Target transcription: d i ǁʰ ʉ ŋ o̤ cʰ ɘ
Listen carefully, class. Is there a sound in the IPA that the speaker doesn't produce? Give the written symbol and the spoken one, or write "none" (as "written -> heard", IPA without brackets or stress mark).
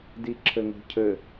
ʉ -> ɘ